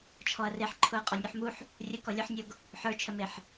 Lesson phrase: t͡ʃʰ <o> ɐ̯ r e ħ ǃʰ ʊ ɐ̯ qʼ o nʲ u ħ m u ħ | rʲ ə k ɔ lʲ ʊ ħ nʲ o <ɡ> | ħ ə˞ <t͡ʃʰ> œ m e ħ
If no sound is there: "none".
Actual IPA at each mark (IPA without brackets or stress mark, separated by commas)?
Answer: ɔ, ɡ, t͡ʃʰ